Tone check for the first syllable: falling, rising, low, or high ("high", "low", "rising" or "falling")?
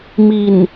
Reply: low